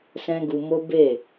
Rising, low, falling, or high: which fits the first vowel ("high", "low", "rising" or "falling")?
high